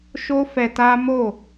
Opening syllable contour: high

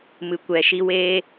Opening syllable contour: low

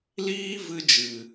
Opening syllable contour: high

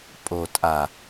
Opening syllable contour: low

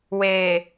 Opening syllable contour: low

